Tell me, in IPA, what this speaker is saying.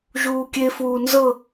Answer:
ʒ uː kʲ e f uː n z ɤ

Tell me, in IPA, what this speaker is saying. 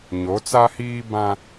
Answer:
ɲ o˨˦ t͡s a˦ h iː˦ b ã˦

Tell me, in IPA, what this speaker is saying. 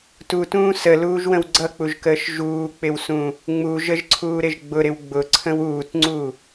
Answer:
t u t ũː s ə l uː ʒ w ə̃ w ɡ͡ǀ ʌ k͡p u ʒ k əː ʃ ʒ uː k͡p ɪ w s ũ | ŋ͡m u ʒ ə ʒ ǀʰ uː ɾ ɪ ʒ ɡ͡b ʊ ɾ ɪ w ɡ͡b ʊ ǀʰ ə̃ w uː t ŋ͡ǀ u

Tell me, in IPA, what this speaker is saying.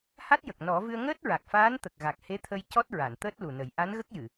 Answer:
h a˦˥ t̚ j ə˨˩ k̚ n ɔ˨˩˦ v ɨ˧ ə̯ ŋ əː˦˥ t̚ ɹ a˨˩ k̚ f aː˧˥ n t̪ ə˨˩ k̚ ɣ a˨˩ k̚ h e˧˥ t̪ʰ ə˧ j c ɔ˦˥ t̚ ɹ a˨˩˨ n t̪ əː˦˥ t̚ l u˨˩ n ə˨˩˦ j ʔ a˧˥ n ɣ ə˦˥ k̚ j ɨ˨˩˨

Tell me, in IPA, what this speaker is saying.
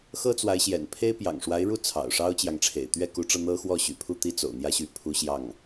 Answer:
x ɤ˥ t͡s w a˧˥ ɪ̯ ɕ j ɛ̰˨˩ n pʰ e˥ ɪ̯ p j ɑ̰˨˩ ŋ ʂ w a˧˥ ɪ̯ ɻ u˥˩ t͡sʰ ɑ̰˨˩ ʊ̯ ʂ ɑ˥ ʊ̯ t͡ɕ j ɑ˨ ŋ ʈ͡ʂʰ ḛ˨˩ ɪ̯ t̪ ɥ ɛ˥˩ k u˧˥ ʈ͡ʂ ɤ˧ n̪ ɤ˥ x w ɔ˥˩ ɕ y̰˨˩ pʰ u˥˩ t̪ i˥ t͡s o̰˨˩ ʊ̯ n̪ j ä˥˧ ɕ y˥˩ pʰ u˥ ɕ j ɑ˥˩ ŋ

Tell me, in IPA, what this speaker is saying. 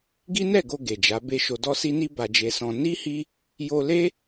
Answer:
ɡ i˦ n ɛ˦˨ ɡ o˧ ɡ e˨ d͡ʒ a˨˦ b e˦ ʃ o˧ d ɔ˦ s i˦ n i˦ b a˧ d͡ʒ e˧ s ɔ̃˧ n i˦ h i˦ | j o˧ l e˦

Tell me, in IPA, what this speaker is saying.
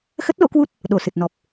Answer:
x ə˦˥ t̚ l o̰˧˥ k w u˦˥ t̚ | ɗ o˧˩ s ɨ˨˩ t̚ n ɔ˨˩ p̚

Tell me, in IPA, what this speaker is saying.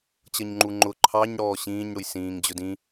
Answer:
t͡ɕ ʌ ɲ ŋ͡ǃ u ŋ͡ǃ ʊ ǃʰ ɑ ɲ ɽ ɔː ɕ ĩː ɲ ɽ ʊ j s ĩː ŋ d͡ʑ ʊ d ĩ

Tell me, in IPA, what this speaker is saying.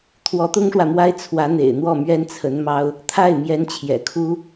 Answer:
t̪ʰ w ɔ˧˥ t̪ ʊ˥ ŋ ʂ w ä˨ m w a˥ ɪ̯ t͡sʰ w ä˧˥ n̪ ḛ˨˩ ɪ̯ n̪ w ɔ˥˩ m ɥ ɛ˥ n t͡sʰ ə˧˥ n m ɑ˥ ʊ̯ | t̪ʰ a˥˩ ɪ̯ m j ɛ˧˥ n t͡ɕʰ j ɛ̰˨˩ kʰ u˥

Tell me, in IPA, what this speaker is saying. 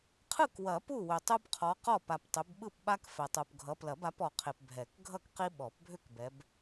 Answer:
qʰ ɯ˥˨ k w ɐ˨˩˦ p u˥˨ w ʏ˨ tˤ u˦ b qʰ ɔ˨˦ q ɔ˥˨ p a˨ p tˤ ʏ˨˦ b ɓ ɯ˥˨ p ɓ a˦ k f ɛ˨ tˤ u˨ p ɡʱ ʌ˨˦ p l ɐ˨˩˦ b a˨˦ p ɔ˨ qʰ e˨ p bʱ ɛ˨˩˦ k ɡʱ ʌ˥˨ k q i˦ ɓ ɔ˨˩˦ p bʱ ʏ˥˨ k b ɛ˨˦ b

